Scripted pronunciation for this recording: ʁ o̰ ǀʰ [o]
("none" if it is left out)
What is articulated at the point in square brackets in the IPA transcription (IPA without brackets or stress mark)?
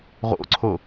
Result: o